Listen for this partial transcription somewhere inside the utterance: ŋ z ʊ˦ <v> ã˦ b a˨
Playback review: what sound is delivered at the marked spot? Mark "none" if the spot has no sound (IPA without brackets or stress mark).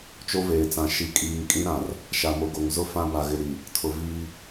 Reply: f